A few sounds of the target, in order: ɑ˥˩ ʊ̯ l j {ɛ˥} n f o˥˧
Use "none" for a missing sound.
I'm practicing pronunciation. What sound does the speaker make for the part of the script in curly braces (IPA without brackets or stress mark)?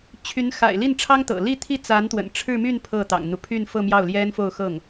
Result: ɛ˥